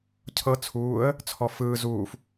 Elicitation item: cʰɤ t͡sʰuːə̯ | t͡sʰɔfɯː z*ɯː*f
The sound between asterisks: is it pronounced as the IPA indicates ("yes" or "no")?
no